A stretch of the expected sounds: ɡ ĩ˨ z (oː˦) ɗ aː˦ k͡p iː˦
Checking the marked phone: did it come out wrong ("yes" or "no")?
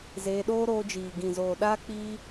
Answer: yes